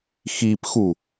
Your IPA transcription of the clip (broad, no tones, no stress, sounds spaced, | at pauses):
x i p x u